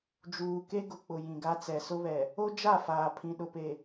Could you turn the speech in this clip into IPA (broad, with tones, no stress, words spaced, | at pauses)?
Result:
d͡ʒuː˨ke˦ɡʊ˨k͡pʊ˨ jĩ˨ɡa˦ t͡sɛ˨sʊ˦βɛ˨ | o˦d͡ʒa˦˨faː˨ pʰĩ˨ɗʊ˨pe˨